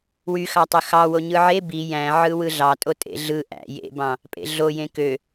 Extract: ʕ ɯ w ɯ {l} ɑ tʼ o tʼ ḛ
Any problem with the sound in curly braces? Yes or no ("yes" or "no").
yes